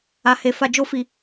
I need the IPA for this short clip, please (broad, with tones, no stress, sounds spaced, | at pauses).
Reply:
a˨ h e˨ f a˨ d͡ʒ o˧ f i˨